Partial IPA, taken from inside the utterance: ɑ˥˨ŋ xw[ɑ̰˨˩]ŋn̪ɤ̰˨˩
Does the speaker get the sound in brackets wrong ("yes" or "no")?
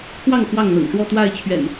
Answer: yes